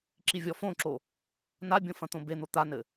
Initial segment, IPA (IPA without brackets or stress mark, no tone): ǁ